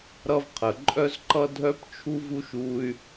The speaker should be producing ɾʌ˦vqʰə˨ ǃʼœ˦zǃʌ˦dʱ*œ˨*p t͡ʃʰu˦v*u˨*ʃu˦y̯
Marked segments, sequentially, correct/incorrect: incorrect, incorrect

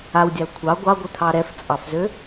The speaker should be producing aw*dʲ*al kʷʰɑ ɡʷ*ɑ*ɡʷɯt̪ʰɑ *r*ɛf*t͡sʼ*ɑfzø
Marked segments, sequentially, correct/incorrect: correct, correct, incorrect, correct

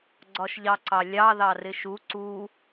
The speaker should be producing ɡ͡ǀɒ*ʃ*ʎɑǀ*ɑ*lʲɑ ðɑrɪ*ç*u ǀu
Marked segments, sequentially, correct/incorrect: correct, correct, incorrect

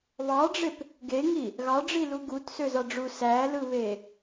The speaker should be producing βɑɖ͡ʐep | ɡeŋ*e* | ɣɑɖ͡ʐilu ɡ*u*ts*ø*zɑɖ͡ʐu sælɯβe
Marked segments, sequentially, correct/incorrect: incorrect, correct, correct

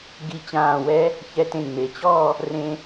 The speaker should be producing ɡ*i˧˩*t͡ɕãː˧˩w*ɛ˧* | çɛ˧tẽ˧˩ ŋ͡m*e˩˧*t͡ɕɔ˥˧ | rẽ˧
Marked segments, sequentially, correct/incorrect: correct, incorrect, correct

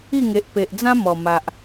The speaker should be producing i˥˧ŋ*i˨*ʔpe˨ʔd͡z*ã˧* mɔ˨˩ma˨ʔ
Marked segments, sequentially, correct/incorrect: incorrect, incorrect

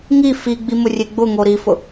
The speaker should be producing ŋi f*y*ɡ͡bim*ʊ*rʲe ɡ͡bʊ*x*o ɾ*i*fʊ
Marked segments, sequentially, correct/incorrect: incorrect, correct, incorrect, correct

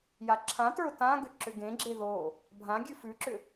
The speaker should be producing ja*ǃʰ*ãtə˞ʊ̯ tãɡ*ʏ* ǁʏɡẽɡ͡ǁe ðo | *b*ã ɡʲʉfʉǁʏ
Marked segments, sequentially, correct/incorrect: incorrect, correct, incorrect

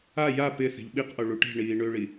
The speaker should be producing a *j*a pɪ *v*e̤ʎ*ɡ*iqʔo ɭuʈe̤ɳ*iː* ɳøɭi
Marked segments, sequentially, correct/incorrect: correct, incorrect, incorrect, correct

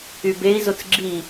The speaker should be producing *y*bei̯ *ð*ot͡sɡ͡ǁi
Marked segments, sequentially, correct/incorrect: correct, incorrect

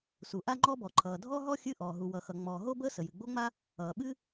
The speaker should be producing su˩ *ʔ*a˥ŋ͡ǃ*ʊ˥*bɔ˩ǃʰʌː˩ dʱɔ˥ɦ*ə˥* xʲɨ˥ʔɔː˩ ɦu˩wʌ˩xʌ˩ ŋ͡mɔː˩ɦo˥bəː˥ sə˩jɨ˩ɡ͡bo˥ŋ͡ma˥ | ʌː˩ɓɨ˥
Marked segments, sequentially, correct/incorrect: correct, incorrect, incorrect

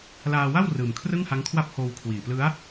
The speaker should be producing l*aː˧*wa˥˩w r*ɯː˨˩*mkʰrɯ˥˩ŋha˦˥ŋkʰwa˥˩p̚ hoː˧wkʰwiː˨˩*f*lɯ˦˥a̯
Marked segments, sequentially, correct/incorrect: correct, correct, incorrect

